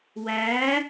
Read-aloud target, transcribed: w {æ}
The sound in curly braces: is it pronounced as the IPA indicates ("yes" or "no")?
yes